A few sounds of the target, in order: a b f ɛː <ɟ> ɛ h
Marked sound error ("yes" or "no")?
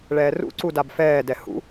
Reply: yes